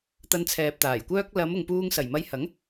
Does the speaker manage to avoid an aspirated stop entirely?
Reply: no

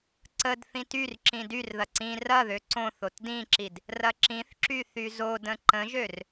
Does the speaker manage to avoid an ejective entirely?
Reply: yes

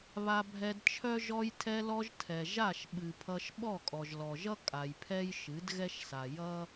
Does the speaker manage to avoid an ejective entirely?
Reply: no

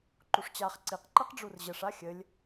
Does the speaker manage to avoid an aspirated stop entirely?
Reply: yes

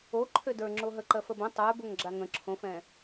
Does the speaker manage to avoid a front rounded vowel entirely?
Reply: no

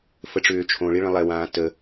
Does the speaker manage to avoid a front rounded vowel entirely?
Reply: no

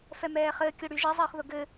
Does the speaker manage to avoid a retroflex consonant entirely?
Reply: no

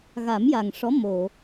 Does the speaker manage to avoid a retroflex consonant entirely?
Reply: no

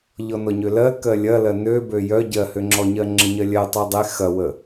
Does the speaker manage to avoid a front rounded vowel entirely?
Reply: no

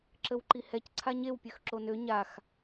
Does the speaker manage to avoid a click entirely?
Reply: no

